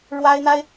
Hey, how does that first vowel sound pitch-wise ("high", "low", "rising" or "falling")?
high